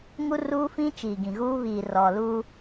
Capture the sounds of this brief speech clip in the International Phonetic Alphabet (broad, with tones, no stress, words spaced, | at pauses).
ŋu˦ ruː˦fĩ˦t͡ʃiː˨ ɡĩ˨ɣuː˦ βiː˨rɔ˨luː˦